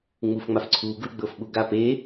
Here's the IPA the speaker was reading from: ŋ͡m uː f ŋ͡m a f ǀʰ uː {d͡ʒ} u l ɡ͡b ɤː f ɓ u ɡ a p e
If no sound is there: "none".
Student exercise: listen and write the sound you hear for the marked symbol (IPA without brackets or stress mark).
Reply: ɡ